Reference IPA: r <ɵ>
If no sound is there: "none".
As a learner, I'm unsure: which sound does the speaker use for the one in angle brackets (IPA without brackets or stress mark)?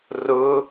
ʊ